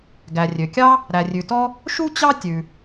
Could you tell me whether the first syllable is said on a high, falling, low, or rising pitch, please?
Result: low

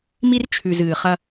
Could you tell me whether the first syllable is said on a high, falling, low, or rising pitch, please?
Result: high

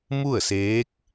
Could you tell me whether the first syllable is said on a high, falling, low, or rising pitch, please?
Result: falling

